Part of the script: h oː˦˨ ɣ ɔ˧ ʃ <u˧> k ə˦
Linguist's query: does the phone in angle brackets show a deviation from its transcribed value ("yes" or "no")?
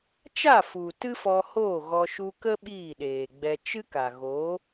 no